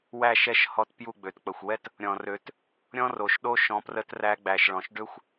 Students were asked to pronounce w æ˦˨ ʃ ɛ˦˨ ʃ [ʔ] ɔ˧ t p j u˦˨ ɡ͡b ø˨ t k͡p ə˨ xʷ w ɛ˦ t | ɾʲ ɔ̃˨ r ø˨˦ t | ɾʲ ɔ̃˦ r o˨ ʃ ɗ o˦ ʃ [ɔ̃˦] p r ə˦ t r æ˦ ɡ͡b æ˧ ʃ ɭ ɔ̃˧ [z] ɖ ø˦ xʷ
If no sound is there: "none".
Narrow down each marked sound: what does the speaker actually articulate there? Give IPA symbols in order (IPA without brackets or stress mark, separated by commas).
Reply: h, ɔ̃˧, ʃ